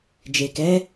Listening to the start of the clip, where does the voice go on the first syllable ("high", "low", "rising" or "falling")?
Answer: low